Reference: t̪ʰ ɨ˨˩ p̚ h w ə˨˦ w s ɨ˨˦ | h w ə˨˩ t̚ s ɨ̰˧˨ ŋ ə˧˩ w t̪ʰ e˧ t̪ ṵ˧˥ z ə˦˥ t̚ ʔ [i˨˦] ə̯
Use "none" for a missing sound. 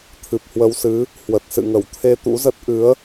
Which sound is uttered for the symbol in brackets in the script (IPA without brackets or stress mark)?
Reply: ɨ˨˦